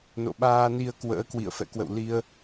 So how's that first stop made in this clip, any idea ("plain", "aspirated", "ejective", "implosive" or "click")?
implosive